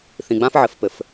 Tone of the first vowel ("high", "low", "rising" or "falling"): low